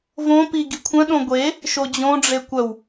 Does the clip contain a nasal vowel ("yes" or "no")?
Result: yes